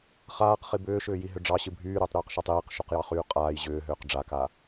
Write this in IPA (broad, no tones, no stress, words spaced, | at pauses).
χaːqχi bʏːʃʏːjiɦʏ ɖ͡ʐɑɕɨ bʱyːɾʏːtˤɾyːqʃɑtˤ iːqʃuqjɑχyː qʼaːj ʑʏːɦʏːq ɖ͡ʐaka